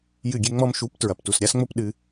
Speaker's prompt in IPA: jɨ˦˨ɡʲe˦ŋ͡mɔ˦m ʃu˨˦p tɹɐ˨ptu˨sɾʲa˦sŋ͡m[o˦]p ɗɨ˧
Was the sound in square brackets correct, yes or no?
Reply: yes